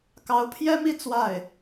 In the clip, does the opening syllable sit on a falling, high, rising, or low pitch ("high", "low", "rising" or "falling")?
rising